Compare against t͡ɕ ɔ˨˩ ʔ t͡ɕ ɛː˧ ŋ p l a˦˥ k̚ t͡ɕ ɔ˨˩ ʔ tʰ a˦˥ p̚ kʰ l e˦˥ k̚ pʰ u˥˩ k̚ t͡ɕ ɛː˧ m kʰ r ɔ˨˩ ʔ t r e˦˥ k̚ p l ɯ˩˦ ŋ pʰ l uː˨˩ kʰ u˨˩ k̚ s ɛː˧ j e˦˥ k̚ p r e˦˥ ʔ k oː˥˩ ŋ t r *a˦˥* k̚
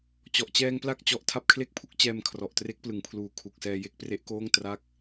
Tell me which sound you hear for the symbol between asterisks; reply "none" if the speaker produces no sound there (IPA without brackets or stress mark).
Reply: a˦˥